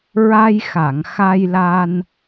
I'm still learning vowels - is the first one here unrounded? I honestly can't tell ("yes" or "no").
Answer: yes